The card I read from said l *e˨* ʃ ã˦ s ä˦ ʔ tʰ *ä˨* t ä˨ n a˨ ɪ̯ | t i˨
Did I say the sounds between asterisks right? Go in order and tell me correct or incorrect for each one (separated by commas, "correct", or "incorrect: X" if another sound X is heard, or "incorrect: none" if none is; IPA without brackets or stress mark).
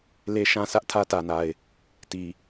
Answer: incorrect: e˦, incorrect: ä˦